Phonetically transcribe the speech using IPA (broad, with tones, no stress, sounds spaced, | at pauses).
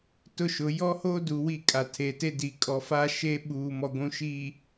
t ʊ˦ ʃ ʊ˨˦ j ɔ˦ h oː˦ d uː˨ w i˦˨ kʼ a˨ tʰ e˨ t e˦ d i˨ kʼ ɔ˨ f aː˦ ʃ eː˦ ɓ uː˨ m ɔ˨ ɡʷ ũ˨ ʃ iː˨